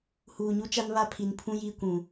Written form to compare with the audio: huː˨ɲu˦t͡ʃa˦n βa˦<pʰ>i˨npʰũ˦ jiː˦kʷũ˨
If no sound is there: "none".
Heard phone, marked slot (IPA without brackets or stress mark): pʰ